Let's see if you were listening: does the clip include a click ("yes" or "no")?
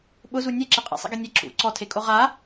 yes